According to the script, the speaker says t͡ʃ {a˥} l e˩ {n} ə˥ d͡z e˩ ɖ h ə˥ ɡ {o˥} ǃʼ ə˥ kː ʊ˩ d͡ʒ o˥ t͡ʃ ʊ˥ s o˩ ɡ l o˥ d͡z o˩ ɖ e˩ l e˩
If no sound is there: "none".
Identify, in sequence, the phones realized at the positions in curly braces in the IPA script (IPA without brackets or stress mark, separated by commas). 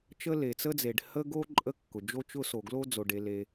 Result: ə˥, t͡s, o˥